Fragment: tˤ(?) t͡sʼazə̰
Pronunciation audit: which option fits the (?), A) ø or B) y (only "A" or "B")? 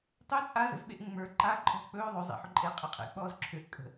A